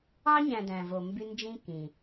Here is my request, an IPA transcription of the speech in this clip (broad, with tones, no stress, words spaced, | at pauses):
ɑ˦ɲæ̃˧ dæ̃˧vo˧mby˦nd͡ʒĩ˦ kĩ˨